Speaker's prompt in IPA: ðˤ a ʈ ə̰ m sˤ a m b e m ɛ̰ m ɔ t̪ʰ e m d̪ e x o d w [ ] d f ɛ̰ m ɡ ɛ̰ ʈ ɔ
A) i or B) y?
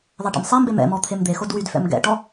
B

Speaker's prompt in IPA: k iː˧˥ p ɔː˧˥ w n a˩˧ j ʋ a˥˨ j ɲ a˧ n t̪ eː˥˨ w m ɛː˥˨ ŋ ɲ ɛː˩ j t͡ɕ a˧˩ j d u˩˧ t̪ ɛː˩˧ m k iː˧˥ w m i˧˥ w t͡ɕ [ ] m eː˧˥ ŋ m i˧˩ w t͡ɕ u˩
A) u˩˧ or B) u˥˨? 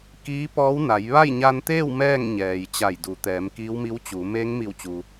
A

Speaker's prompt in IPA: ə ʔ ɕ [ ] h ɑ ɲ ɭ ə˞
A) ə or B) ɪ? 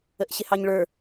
B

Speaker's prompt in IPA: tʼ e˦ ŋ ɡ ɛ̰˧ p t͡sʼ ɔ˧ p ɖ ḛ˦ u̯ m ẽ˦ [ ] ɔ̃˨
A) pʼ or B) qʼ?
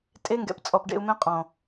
B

